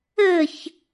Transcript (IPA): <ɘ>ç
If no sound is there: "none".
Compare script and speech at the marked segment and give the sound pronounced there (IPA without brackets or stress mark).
ɘ